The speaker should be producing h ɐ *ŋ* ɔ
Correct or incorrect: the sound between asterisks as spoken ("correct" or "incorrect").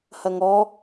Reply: correct